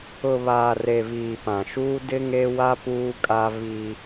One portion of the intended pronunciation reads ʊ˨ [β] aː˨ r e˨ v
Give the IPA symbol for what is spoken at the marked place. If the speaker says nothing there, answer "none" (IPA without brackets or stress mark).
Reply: β